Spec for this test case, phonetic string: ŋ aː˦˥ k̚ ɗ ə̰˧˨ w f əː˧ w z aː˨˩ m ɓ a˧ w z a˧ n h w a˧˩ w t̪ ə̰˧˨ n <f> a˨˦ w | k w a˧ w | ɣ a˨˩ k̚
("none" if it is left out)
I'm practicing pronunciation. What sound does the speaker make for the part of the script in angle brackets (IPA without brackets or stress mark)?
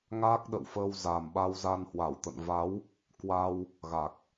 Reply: v